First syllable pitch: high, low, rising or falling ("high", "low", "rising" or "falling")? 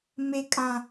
high